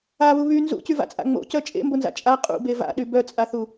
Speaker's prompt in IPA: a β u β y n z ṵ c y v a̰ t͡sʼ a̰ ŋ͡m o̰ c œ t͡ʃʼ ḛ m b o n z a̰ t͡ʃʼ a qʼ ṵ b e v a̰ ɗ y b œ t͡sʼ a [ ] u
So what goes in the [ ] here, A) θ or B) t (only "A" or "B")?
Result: A